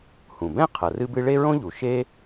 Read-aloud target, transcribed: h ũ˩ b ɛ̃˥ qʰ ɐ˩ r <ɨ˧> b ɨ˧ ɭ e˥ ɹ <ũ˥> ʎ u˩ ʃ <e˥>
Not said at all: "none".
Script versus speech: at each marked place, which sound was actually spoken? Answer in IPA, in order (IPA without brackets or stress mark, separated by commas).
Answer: ɨ˧, õ˥, e˥